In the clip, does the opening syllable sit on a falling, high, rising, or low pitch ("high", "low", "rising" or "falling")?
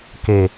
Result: low